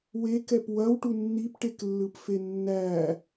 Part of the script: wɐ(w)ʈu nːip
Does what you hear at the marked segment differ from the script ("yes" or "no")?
no